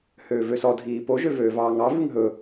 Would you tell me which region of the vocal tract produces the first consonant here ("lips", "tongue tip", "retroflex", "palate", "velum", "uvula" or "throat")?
throat